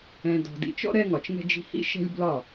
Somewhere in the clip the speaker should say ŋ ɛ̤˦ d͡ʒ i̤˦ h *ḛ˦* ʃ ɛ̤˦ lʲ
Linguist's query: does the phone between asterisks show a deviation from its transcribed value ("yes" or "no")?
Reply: yes